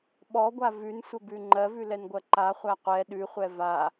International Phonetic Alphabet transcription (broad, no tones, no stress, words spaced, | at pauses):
ɓɔɡʷa vʉnsʷəbʉ ŋ͡ǃɜvʉlɛnɡʷɜ ǃaχʷæ qʷɛ ɗʉχʷɛ va